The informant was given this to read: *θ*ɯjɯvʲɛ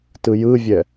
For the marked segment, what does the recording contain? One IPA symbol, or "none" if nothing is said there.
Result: t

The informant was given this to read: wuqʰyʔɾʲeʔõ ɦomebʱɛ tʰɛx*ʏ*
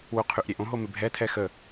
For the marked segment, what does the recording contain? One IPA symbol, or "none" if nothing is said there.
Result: ə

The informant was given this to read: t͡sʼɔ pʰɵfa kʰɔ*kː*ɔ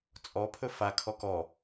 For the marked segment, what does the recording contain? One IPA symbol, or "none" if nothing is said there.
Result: k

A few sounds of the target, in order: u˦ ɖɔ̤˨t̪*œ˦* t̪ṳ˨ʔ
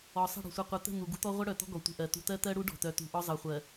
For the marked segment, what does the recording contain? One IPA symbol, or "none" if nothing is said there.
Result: œ˨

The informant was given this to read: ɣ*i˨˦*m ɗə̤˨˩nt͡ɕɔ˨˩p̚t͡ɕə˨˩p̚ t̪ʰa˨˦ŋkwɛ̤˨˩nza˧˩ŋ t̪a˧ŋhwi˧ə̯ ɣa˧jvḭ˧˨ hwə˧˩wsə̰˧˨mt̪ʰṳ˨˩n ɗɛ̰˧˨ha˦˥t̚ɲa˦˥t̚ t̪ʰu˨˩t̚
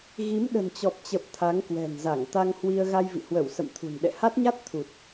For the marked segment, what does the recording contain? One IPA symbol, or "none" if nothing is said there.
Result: i˨˦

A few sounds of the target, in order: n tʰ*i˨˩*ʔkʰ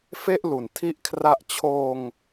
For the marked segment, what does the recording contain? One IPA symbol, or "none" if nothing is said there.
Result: i˥˩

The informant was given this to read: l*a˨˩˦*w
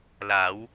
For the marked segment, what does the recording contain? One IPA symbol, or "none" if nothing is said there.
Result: a˨˩˦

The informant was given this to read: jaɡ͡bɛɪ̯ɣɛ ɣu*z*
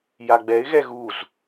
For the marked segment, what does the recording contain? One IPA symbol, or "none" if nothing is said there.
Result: z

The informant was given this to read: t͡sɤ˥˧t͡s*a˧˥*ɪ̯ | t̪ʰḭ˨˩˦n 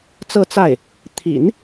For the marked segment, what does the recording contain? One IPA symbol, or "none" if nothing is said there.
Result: a˥˩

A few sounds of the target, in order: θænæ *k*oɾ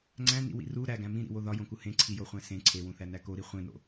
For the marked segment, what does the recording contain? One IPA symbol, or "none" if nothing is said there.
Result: k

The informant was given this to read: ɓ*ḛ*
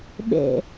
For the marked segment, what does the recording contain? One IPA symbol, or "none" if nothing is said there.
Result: ḛ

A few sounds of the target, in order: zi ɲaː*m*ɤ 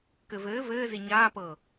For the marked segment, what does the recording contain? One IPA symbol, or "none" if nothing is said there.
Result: p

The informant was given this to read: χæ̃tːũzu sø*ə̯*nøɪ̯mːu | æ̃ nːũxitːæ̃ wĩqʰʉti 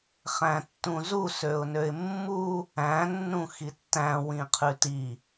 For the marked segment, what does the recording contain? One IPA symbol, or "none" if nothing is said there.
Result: ʊ̯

